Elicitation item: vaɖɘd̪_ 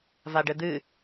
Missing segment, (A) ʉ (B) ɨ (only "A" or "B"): B